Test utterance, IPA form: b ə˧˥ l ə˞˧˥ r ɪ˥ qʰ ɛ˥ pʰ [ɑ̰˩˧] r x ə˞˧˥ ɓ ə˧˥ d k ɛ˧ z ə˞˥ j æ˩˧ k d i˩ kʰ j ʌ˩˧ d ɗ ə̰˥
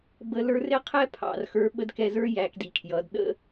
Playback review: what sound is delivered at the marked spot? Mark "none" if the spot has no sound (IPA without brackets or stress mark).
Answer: ɑ̰˩